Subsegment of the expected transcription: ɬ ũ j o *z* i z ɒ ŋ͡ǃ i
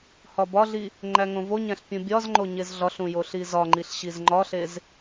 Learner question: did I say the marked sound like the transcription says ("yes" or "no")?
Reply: no